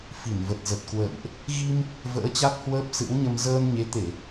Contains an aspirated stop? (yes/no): no